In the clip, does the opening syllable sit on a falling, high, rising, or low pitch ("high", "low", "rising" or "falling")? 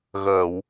low